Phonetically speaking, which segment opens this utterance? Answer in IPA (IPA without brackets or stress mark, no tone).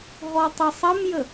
ɦ